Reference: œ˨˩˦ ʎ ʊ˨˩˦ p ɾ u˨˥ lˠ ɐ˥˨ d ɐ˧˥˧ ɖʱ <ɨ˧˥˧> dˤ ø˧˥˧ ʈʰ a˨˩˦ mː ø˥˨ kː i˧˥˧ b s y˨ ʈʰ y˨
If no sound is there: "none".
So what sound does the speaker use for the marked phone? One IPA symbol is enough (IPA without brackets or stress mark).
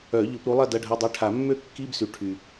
ə˧˥˧